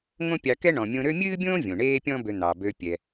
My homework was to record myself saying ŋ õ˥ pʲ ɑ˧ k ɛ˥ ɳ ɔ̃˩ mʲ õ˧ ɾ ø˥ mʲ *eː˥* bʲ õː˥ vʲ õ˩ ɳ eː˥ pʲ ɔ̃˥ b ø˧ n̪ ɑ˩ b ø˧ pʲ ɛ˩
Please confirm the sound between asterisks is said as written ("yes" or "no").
no